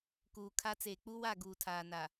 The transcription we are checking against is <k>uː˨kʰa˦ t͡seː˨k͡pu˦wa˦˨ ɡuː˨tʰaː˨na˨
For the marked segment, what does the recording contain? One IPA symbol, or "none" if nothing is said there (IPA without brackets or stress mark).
k